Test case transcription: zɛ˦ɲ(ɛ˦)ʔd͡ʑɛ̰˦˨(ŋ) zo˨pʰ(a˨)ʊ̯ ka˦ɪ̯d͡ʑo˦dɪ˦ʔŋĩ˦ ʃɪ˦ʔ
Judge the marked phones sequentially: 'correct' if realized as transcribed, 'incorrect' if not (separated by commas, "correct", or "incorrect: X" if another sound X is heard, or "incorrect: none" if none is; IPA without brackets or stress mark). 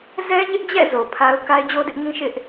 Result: incorrect: ɪ˦, incorrect: none, incorrect: a˦